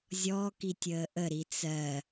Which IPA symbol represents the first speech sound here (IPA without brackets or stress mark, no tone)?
zʲ